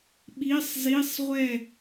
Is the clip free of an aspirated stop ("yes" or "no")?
yes